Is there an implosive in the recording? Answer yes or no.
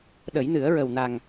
yes